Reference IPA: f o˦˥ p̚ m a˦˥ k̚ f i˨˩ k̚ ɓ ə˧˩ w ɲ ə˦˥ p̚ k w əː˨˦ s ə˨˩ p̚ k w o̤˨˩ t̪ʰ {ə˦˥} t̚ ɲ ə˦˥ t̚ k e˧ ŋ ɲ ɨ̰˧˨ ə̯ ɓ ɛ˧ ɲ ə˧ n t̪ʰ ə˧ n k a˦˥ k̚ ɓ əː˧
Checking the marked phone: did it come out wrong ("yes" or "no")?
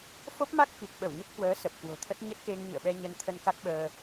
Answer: no